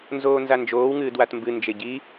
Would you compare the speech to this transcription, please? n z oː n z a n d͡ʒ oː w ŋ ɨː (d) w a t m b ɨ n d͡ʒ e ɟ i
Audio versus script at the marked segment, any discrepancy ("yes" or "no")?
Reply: no